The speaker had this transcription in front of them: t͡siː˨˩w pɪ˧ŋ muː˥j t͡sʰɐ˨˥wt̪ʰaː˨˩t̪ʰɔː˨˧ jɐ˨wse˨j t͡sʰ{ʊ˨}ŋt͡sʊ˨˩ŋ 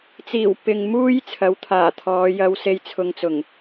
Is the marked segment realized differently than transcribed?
no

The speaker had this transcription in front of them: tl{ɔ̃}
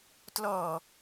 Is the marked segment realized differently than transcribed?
yes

